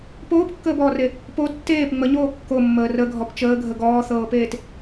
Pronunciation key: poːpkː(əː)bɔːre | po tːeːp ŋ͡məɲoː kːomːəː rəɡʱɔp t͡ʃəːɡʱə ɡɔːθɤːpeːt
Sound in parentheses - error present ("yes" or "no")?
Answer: no